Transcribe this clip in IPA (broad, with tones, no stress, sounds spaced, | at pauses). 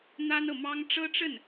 n̪ a˥ n ɤ˨ m ɑ˥ ŋ ʈ͡ʂ ɤ˥ ʈ͡ʂ ə˥˩ n